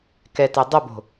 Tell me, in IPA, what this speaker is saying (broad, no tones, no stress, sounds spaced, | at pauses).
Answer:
k ɛ t e dˤ ɪ b o̤